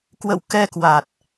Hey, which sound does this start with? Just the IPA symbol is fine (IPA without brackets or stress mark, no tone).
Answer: k